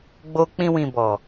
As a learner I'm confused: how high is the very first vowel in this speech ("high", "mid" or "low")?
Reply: mid